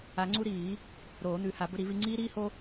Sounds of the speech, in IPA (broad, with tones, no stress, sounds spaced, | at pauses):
a˨˩˦ ŋ͡ǀ u˦ ɾ iː˨˩˦ | ɾ oː˨˩˦ n̪ ʉ˨˩˦ h a˨˩˦ b ɵ˦ ɾ i˨˩˦ v i˦ ŋ͡ǀ iː˦ ɾ iː˦ h o˦